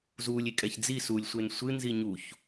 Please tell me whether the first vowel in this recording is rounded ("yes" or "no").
yes